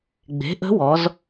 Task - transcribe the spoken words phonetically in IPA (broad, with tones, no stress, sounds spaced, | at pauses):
ɡ͡b e̤˩˥ ʔ ə̤˧˥ w ɔ˩˧ z